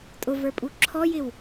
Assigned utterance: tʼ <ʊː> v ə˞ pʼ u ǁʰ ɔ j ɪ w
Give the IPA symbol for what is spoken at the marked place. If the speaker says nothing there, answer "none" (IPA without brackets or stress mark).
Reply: ʊ